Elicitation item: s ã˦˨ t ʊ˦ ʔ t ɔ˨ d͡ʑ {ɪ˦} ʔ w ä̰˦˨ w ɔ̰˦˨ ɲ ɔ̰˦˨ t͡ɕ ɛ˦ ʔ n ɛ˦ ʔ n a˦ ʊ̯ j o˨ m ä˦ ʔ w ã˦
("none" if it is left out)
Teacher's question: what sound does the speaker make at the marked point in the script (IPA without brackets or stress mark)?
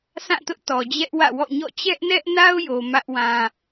ɛ˦